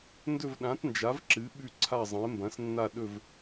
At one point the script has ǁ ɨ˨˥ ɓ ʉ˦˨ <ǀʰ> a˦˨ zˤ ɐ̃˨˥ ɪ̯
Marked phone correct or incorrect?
correct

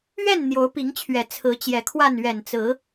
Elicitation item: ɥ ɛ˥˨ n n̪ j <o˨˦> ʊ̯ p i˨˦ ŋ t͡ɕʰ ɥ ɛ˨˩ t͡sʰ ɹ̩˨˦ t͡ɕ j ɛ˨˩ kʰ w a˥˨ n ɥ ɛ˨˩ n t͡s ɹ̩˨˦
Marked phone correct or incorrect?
correct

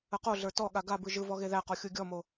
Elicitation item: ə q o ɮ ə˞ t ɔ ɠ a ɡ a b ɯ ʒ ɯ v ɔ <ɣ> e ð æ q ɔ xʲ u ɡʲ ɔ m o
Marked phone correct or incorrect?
correct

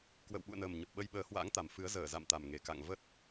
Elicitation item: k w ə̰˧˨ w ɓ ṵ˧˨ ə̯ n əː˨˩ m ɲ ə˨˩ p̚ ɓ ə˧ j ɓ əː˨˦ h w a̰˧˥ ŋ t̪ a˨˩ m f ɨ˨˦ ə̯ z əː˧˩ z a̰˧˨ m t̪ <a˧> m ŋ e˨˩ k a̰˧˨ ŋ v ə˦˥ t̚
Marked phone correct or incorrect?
incorrect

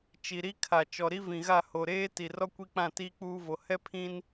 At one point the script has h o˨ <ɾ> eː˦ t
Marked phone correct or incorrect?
correct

